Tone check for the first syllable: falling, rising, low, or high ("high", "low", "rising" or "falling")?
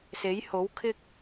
rising